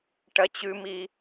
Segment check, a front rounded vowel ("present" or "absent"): absent